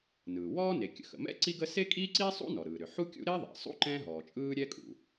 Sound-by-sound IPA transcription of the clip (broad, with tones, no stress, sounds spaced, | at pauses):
n ɯː˩ w ɔː˥ n e˩ kʲ ə̰˩ x ə̰˩ m ɛ̰˥ ǀ i˥ ɡ ə˥ s e˥ kʼ iː˥ ǀ iː˥ sˤ ṵ˥ n ɔ˩ ɾ ɯː˩ ɾ ʏ˩ ħ u˥ kʲ ṵ˥ ɾ e˥ ðˤ ɛ̰˩ sˤ ṵ˥ ǃ ɛ̃˥ ɦ ɔː˩ t͡ʃʼ ɯː˥ ɾʲ ɛ˥ kʼ ṵ˩